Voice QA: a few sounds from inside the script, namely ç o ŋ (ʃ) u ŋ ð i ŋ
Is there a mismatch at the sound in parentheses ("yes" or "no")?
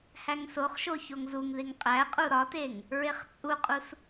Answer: yes